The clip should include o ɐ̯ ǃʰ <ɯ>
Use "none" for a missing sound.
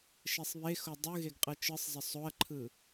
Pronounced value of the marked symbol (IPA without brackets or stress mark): ɯ